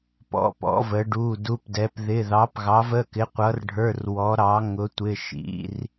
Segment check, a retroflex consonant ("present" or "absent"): present